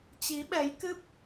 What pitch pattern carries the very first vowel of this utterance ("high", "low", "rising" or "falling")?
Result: rising